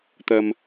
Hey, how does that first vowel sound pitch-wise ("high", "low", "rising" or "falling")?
low